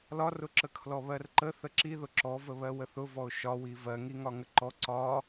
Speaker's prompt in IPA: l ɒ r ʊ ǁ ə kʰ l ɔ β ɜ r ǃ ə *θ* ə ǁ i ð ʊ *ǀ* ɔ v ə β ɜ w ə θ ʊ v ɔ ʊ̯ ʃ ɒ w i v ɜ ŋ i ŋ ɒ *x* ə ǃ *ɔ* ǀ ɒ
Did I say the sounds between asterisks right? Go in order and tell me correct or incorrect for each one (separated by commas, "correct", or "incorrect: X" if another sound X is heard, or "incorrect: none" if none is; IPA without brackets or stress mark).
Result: correct, incorrect: ǁ, incorrect: ŋ, correct